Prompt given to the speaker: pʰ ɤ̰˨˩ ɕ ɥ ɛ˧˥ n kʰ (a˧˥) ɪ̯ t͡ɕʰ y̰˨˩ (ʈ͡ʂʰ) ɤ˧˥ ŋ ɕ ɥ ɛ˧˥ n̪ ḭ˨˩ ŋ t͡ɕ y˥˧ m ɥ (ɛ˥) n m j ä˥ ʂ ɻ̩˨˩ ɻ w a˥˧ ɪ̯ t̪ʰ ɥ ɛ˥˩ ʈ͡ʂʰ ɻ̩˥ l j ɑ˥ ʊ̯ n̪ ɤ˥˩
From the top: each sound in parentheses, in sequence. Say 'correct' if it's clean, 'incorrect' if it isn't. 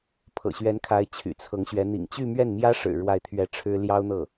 correct, incorrect: t͡sʰ, incorrect: ɛ˥˩

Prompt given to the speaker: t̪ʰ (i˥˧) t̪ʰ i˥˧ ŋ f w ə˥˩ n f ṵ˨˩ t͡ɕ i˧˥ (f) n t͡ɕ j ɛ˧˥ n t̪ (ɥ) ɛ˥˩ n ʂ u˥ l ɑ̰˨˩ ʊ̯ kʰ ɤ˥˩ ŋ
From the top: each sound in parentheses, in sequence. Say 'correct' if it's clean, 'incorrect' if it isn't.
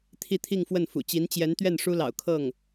correct, incorrect: none, correct

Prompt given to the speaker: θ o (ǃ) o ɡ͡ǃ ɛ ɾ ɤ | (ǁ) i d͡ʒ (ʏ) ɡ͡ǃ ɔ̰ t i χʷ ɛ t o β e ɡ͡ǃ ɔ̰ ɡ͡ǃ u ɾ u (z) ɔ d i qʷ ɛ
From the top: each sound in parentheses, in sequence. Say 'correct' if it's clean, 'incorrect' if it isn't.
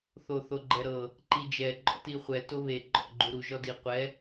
incorrect: θ, incorrect: ǃ, incorrect: ɛ, incorrect: ʒ

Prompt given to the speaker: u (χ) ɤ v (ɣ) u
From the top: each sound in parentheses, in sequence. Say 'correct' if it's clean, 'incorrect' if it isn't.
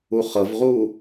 correct, incorrect: ʁ

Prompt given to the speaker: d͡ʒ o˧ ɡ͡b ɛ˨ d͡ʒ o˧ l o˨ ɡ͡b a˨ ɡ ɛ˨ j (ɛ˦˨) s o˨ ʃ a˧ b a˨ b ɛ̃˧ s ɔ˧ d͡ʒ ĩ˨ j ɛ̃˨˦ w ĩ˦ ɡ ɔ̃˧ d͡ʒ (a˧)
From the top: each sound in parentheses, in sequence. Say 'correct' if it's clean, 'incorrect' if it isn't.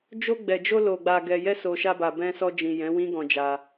incorrect: ɛ˧, correct

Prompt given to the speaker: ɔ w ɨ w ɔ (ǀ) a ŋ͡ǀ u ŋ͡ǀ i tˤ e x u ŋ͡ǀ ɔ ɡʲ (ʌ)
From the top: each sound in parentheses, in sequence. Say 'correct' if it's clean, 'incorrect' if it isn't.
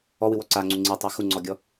correct, incorrect: ɔ

